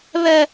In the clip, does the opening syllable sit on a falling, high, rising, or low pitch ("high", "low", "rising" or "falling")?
high